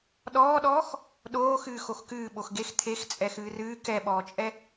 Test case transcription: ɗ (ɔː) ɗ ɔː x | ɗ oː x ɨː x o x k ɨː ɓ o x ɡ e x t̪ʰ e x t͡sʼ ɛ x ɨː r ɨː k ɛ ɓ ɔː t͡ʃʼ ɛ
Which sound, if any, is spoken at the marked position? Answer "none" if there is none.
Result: ɔː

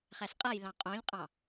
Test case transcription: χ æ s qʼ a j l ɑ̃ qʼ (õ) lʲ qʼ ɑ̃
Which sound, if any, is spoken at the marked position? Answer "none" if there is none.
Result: õ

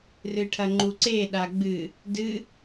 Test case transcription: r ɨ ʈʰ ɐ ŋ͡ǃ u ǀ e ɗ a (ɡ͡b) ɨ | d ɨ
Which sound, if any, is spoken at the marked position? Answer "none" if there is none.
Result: ɡ͡b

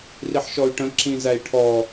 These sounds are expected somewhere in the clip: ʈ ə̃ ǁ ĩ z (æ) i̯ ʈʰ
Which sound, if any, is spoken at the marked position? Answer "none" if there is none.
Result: æ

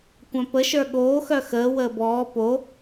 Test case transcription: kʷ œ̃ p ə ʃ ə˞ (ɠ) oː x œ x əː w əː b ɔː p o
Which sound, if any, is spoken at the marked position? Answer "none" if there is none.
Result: ɠ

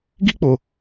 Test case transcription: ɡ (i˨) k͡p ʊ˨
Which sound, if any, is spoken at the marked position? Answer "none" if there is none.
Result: i˦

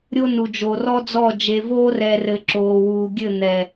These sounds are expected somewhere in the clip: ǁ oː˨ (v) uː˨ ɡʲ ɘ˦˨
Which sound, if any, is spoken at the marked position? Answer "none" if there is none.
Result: w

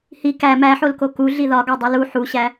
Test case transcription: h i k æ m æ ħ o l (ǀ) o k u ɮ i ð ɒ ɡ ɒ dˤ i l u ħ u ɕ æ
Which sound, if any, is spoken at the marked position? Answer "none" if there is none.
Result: k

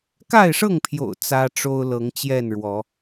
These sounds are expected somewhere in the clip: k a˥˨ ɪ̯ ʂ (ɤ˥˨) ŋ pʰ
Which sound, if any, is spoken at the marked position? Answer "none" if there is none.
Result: ɤ˥˨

